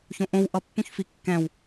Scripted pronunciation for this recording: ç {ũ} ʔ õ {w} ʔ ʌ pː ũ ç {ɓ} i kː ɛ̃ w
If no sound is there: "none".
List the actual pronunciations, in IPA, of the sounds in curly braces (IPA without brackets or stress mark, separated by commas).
õ, w, f